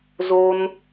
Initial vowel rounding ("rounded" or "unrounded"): rounded